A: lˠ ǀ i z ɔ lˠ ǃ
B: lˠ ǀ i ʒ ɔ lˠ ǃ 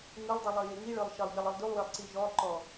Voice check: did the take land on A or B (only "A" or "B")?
B